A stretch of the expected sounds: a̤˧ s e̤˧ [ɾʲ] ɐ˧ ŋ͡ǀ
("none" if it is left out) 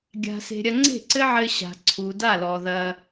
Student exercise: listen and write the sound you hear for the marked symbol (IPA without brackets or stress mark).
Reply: ɾʲ